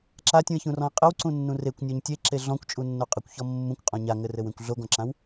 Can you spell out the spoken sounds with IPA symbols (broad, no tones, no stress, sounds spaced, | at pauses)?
ǁ a tʲ ũ ɪ̯ ç ũ r ɔ̃ ɪ̯ qʼ ɘ w ǀ ũ nː ũ r e kʷ nʲ ɔ ɲ tʲ e ǁ e ɮ ɔ̃ kʷ t͡ʃʼ u nː o qʼ ɘ kʷ ç ɔ mː ũ kʷ qʼ ɔ̃ ɲ a ŋ ɘ r ɘ w ẽ kʷ ɮ o ɡ ɔ̃ ǁ ã w